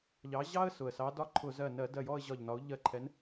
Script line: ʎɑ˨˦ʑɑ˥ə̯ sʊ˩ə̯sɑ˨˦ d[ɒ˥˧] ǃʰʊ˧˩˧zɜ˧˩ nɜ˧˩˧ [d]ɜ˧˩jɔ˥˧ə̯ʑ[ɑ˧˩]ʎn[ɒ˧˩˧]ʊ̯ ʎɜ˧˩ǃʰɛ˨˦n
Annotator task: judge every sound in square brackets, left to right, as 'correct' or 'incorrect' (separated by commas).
correct, correct, incorrect, incorrect